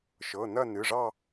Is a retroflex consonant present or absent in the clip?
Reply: present